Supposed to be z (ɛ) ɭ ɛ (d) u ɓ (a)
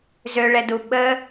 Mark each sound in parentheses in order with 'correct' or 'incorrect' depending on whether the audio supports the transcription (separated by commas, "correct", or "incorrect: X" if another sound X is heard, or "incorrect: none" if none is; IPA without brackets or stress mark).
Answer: incorrect: ø, correct, incorrect: ə